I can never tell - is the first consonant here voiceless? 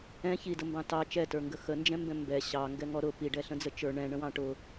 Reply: yes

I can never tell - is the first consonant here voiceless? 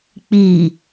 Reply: yes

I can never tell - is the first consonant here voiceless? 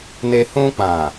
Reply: no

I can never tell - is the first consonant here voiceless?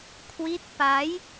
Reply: yes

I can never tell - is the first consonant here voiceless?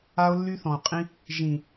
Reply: no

